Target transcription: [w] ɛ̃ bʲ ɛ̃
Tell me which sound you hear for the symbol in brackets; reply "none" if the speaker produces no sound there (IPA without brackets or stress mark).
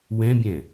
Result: w